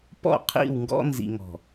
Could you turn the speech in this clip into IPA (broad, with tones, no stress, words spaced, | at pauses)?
pɔ̰˦˨qʰḭ˦˨wŋɡɔ̰˦ nzḭ˨ŋɔ̤˨